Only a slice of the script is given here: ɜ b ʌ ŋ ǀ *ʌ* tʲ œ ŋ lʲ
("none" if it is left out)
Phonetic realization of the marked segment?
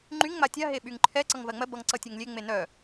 ʌ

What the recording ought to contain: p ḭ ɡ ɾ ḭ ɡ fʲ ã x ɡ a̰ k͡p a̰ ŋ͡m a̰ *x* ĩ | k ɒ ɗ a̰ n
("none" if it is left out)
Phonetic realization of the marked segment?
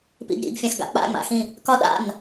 x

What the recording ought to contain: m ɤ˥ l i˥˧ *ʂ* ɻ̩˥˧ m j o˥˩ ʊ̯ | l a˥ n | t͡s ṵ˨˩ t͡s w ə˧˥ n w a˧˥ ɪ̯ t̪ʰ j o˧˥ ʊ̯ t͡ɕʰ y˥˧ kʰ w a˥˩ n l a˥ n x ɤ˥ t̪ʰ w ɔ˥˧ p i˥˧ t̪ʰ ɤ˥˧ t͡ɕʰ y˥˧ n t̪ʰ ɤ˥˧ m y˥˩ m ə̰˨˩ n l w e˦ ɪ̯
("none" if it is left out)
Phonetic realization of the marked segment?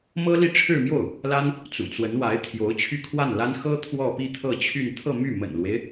ʈ͡ʂʰ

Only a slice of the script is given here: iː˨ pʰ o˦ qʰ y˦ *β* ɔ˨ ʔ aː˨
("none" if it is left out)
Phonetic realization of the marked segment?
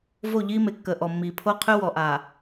w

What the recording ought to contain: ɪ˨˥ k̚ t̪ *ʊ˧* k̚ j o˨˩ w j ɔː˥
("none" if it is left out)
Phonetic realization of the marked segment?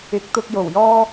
ʊ˧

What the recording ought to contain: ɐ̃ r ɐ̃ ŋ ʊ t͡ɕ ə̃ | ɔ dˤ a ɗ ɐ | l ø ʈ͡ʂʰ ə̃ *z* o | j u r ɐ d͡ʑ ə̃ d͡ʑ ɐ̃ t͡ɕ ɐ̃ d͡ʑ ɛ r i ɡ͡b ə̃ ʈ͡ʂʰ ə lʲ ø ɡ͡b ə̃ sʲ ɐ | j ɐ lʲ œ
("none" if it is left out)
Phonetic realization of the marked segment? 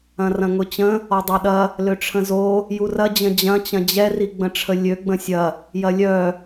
z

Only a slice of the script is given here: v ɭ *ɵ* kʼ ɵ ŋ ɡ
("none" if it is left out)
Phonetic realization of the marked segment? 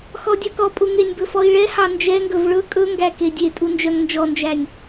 ɵ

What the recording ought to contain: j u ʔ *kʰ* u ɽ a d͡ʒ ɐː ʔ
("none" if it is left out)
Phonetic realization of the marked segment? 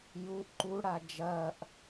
ǃ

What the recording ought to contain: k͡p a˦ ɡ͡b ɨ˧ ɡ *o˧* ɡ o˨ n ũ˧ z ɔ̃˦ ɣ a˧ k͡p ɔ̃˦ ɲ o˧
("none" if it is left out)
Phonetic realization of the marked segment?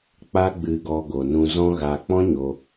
ɔ˧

